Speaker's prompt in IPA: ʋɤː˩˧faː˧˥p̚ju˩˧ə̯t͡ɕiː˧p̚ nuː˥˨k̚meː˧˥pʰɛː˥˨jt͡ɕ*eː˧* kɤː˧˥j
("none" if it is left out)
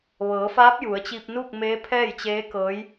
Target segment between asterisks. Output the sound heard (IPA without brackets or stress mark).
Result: eː˧˥